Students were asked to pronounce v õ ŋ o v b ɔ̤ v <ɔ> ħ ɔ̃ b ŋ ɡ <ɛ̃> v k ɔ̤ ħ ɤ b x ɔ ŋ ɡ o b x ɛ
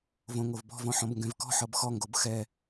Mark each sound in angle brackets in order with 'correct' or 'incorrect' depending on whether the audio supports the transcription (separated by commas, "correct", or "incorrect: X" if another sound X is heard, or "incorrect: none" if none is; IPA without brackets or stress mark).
incorrect: ɔ̃, correct